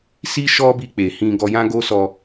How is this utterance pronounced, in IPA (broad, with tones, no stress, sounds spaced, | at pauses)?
s i˦ ʃ ɔ˦ b i˧ k͡p e˨ h ĩ˧ ɡ ɔ˧ j ã˦ ɡ o˦ s ɔ˧